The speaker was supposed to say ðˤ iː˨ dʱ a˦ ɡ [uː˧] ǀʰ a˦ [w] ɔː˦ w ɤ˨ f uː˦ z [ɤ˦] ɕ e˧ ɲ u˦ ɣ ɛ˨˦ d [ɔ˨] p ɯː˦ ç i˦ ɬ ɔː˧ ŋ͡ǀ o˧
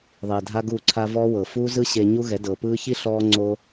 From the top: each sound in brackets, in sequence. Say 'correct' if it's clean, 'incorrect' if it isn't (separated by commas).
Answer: incorrect, incorrect, incorrect, incorrect